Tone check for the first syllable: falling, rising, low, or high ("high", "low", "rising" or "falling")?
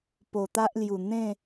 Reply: low